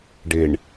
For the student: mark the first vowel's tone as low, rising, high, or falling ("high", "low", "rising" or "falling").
low